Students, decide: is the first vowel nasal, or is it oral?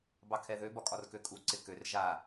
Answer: oral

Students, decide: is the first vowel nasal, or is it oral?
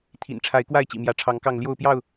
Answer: oral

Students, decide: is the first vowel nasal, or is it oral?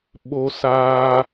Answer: oral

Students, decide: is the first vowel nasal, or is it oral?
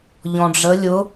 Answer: nasal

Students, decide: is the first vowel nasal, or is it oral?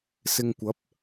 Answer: oral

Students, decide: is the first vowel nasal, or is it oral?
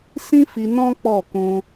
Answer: nasal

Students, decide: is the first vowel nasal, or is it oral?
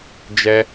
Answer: oral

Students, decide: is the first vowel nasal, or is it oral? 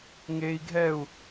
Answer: oral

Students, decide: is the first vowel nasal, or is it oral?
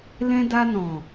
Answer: nasal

